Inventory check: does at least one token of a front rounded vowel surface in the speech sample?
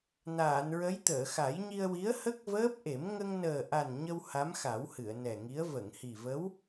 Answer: no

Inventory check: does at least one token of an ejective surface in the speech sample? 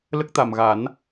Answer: no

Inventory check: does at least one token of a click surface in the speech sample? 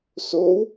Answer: no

